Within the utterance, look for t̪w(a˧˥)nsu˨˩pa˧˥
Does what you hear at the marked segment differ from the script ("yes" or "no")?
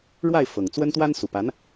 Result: yes